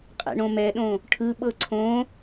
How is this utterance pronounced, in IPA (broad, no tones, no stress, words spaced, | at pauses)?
qʼɛ̰ɳõmɛɗõ | ʈʰɯɓɤ ǀʰõ